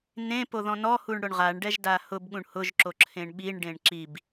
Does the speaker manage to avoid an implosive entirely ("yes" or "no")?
no